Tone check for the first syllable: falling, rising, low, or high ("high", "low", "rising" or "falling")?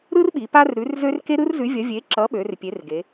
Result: high